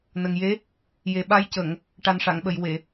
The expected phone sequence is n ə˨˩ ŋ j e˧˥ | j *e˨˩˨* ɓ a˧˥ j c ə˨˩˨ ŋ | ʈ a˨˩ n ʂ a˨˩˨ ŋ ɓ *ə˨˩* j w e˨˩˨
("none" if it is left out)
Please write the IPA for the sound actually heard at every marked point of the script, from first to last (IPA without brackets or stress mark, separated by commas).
e˨˩, ə˨˩˨